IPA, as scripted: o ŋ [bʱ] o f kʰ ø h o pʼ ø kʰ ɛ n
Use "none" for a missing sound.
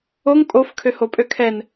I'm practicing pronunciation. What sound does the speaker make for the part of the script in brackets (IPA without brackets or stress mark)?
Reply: pʼ